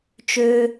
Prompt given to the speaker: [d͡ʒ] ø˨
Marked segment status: incorrect: t͡ʃ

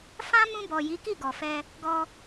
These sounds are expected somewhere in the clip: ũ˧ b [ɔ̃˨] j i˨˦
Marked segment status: incorrect: ɔ˨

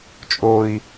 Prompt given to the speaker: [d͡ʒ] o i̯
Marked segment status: incorrect: t͡ʃʼ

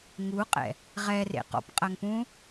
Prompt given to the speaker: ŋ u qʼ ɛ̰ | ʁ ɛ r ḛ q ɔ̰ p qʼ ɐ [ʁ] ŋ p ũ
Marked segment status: incorrect: none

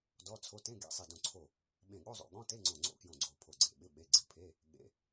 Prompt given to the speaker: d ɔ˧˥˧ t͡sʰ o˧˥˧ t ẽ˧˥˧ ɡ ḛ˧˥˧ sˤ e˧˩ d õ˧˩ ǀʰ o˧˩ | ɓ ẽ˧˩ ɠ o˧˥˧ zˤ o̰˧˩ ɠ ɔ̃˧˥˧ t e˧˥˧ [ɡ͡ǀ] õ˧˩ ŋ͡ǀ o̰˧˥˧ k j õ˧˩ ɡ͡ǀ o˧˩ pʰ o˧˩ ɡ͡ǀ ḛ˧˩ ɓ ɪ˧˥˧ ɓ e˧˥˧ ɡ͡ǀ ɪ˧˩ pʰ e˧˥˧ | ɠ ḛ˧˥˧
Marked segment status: incorrect: ŋ͡ǀ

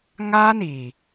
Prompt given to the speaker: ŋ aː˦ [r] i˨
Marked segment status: incorrect: n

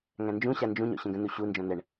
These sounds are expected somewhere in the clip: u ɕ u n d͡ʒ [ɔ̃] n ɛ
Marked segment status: correct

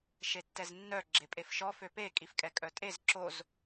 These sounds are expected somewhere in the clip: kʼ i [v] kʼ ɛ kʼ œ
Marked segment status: incorrect: f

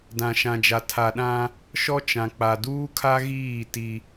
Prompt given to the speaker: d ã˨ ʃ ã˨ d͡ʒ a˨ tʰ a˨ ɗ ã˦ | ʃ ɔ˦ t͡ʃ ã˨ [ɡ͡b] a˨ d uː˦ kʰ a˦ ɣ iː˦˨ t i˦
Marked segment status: incorrect: k͡p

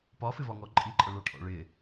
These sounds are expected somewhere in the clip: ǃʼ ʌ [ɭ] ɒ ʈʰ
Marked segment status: correct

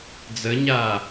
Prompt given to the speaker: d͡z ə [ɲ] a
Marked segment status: correct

